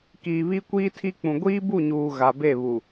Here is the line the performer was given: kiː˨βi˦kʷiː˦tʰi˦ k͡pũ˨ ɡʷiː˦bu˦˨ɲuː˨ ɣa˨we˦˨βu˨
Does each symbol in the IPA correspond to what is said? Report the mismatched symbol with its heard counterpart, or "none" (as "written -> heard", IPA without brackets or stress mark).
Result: w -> b